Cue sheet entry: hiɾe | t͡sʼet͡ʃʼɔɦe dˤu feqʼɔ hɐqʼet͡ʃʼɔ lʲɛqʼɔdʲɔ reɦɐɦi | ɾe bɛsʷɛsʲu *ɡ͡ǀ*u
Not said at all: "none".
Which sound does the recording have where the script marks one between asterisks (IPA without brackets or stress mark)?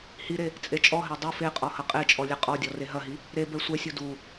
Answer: d